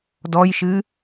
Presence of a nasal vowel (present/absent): absent